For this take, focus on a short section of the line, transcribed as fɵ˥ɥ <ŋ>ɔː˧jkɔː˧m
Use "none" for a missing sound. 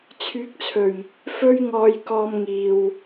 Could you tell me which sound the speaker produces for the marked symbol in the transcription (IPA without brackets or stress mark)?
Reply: ŋ